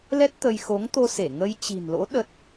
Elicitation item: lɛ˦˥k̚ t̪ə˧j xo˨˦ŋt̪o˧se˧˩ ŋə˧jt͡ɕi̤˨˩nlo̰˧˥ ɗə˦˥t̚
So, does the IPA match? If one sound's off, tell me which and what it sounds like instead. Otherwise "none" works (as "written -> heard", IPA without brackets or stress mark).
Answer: k̚ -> t̚